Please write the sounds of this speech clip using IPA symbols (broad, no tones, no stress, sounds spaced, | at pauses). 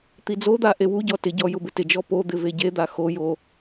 t̪ i d͡z o d̪ a ʔ e w u ɟ ɔ t ɪ ɟ ɔ j ʊ b ɪ t ɪ d͡ʒ ɔ p o d̪ ɪ v e ɟ e d̪ a x o j o